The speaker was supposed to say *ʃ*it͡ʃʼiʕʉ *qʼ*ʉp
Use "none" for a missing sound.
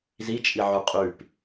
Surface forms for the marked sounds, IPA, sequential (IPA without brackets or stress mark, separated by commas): z, qʼ